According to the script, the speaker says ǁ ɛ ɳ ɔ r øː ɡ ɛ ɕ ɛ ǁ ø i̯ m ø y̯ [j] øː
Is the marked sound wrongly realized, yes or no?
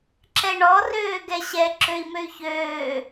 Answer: yes